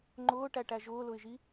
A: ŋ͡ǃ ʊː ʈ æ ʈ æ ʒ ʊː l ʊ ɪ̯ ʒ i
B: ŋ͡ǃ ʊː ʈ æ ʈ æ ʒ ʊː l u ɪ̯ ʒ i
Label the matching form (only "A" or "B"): A